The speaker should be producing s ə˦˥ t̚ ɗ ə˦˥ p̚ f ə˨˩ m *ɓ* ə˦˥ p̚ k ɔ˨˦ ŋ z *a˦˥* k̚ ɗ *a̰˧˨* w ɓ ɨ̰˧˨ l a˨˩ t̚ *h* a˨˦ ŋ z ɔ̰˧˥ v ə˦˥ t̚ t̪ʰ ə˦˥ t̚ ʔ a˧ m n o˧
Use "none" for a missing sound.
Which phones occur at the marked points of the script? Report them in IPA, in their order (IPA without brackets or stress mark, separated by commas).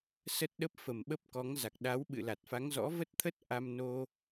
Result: ɓ, a˨˩, a˨˦, f